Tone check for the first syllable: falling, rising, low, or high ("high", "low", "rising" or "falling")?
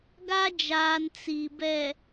high